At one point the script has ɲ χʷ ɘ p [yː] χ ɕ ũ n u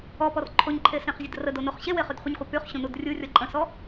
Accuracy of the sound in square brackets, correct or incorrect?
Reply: incorrect